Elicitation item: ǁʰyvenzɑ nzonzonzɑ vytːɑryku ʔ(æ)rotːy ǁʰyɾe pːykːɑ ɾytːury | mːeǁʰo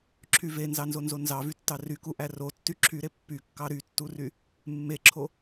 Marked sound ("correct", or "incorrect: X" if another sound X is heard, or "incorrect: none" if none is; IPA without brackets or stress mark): correct